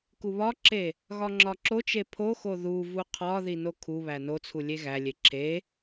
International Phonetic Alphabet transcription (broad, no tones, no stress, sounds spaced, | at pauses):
k u β ɒ ǁ e | ɣ ɒ ŋ͡ǁ ɒ ǁ o t͡ʃ e pʰ o x o ð u v u qʰ ɒ ð i n o kʰ u β æ n o t͡sʰ u lʲ e ɣ æ lʲ e ǁʰ e